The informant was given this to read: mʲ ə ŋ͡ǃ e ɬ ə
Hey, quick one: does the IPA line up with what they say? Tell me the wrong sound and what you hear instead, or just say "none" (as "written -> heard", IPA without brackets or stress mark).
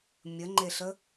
none